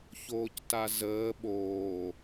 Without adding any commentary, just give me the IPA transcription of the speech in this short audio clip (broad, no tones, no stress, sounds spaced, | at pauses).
ç oː c t a z əː ɓ oː